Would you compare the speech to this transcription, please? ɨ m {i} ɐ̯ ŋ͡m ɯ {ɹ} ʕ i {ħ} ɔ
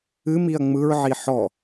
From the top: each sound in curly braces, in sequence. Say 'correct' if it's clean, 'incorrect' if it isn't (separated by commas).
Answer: correct, correct, correct